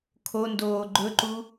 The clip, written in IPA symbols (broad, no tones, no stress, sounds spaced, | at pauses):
kʰ o n d oː ɡ͡ǃ ɵ ǃ u